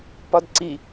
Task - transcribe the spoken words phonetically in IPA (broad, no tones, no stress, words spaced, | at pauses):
pɒdǀi